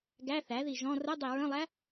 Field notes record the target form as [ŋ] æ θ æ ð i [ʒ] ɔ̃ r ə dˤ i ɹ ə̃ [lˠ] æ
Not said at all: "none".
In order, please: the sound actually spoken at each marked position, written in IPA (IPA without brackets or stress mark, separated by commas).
ɡ, ʒ, lˠ